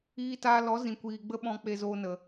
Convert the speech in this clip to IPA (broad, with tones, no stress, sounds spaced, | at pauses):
iː˧ t aː˧ l ɔ˨˦ z ĩ˨ kʷ iː˨ ɡ͡b ə˦ ɓ ɔ̃˧ k͡p e˧ z oː˧ n ə˨